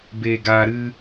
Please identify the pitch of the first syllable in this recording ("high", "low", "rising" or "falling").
low